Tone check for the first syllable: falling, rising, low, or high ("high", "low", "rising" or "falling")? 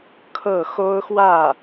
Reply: falling